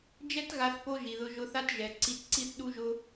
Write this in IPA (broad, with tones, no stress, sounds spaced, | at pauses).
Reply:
d͡ʒ ɛ˦ t ɣ a˧ θ p o˦ ʒ i˨ ð ʊ˧ ʒ ʊ˧ θ a˦ t ʒ ɛ˨ ǀ i˧ t ǀ i˦ θ ɗ u˦ ʒ ʊ˦